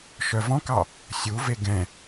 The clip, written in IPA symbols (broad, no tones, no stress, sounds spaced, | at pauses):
ʃ œ v ɔ̃ k ɑ | sʲ u v e ɡ ɛ̃